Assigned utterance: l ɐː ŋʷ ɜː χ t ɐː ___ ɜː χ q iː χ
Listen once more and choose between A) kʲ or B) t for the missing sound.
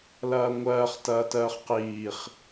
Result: B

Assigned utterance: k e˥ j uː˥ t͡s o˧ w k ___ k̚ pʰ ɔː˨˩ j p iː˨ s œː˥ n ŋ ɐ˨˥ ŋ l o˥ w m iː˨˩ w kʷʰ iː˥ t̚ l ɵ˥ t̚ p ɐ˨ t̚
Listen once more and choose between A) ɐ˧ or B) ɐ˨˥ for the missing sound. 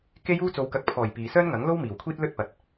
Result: A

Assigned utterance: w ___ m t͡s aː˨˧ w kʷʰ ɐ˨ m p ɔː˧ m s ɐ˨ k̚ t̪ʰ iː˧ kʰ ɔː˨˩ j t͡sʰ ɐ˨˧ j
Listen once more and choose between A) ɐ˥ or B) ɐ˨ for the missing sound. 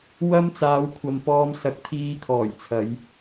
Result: A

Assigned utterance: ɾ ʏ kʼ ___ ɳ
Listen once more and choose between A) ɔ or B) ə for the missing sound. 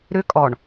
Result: A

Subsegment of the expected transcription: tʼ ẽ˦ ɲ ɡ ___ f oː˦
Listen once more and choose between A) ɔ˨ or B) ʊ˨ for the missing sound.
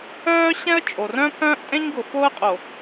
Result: B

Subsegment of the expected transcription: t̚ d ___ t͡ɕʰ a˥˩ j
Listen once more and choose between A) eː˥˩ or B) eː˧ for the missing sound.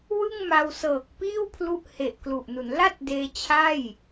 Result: B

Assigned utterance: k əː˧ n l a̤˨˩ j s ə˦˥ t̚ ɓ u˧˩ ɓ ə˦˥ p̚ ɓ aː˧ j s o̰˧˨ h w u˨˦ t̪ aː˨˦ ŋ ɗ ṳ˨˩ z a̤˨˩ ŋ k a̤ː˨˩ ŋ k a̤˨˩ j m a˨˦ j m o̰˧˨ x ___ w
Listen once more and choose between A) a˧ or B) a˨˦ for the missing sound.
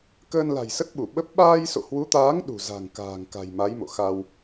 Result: A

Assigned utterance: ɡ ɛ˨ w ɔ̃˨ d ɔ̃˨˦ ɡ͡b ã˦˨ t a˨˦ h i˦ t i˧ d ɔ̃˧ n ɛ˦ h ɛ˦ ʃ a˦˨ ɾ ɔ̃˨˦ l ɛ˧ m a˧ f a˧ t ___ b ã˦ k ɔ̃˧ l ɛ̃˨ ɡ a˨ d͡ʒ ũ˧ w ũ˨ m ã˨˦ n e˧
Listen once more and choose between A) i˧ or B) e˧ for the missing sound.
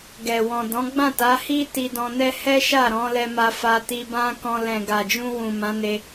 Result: A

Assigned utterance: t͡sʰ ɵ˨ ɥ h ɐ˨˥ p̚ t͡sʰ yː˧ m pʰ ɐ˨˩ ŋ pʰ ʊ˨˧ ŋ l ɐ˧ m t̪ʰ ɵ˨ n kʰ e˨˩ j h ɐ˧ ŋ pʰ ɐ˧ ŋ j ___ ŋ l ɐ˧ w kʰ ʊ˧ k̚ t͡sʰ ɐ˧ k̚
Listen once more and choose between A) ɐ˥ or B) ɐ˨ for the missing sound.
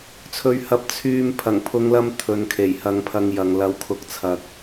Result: B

